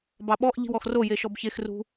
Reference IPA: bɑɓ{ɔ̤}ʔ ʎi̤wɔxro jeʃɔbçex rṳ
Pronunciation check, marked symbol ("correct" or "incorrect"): incorrect